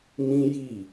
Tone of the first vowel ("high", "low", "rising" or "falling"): high